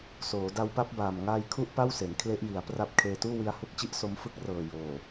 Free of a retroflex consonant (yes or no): yes